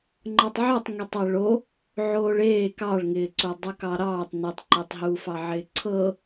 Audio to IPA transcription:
ŋ͡ǃ ɤ tˤ ʕ o tˤ ŋ e tˤ ɤ ɭ o | ʕ oː ɭ eː k ɑ ɭ ŋ ɪː ǀ o dˤ u k ɑ ɾ ɑː tˤ n u tˤ ǃ e tˤ ɦ uː f ɑ ʕ ɪː ǀʰ ɤ

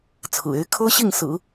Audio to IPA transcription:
t͡sʰ ɹ̩˨˩ e˧˥ ɪ̯ kʰ ɤ˥ ɕ i˥˩ ŋ s ɹ̩˨˩˦

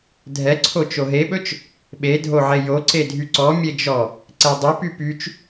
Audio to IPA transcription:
dʱ ɛ ǀʰ o t͡ʃ o ɦ e ɓ ɵ t͡ʃ | ɓ e dʱ o ʕ e j o ǀ e dʱ y ǀ ɔ mʲ e d͡ʒ ɔ | ǀ ɛ dˤ ɵ p y p y t͡ʃ

